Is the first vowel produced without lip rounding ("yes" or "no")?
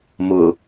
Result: no